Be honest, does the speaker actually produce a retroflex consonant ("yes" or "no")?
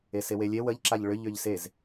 yes